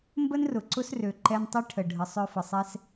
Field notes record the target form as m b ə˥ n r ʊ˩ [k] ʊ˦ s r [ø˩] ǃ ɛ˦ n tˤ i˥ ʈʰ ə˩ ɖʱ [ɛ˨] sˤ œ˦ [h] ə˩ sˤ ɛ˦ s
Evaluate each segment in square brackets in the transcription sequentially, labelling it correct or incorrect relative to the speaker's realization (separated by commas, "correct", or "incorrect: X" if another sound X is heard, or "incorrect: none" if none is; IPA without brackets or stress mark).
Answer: incorrect: ǀ, correct, incorrect: ə˨, incorrect: f